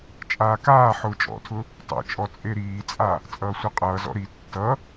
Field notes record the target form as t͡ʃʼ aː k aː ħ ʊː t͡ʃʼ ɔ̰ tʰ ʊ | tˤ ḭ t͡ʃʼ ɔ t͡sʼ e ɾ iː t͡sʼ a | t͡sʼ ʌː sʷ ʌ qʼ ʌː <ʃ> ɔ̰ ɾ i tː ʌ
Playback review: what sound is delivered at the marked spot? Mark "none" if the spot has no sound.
z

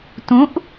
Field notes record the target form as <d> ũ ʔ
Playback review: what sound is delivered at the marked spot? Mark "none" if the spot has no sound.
t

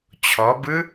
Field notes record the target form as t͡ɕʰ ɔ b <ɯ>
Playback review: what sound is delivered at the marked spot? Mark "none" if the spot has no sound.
ɯ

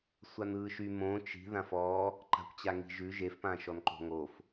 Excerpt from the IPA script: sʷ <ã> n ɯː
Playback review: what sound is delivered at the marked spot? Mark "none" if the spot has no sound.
a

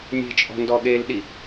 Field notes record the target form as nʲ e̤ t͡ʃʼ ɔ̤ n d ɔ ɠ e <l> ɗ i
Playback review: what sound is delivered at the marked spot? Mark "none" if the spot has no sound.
l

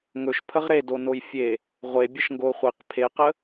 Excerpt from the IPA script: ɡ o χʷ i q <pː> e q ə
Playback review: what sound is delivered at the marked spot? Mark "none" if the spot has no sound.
pʰ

